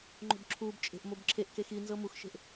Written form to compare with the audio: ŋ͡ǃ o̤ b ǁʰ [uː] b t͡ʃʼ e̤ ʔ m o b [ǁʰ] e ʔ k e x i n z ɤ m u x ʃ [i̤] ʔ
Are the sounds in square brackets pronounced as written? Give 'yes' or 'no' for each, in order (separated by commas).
yes, yes, no